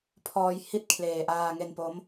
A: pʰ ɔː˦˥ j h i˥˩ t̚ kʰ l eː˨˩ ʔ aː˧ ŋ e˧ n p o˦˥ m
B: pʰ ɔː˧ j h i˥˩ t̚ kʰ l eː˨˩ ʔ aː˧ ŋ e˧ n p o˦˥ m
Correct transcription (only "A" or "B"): B